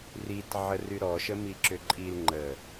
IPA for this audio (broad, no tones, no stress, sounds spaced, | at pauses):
r i t ʕ ə r y ɾ ɔ ʃ ə m i ǁ ʏ ǃʼ i l ŋ͡ǃ ə